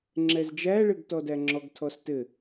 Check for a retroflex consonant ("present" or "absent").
present